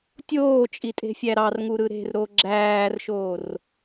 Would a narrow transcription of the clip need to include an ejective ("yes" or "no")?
yes